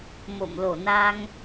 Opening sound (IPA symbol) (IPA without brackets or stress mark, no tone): m